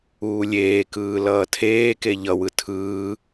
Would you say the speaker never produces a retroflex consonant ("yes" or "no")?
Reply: yes